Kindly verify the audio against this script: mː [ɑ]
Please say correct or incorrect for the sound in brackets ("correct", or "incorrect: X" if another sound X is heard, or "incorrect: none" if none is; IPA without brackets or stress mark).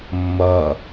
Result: incorrect: ʌ